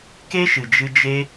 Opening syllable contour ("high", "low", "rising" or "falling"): high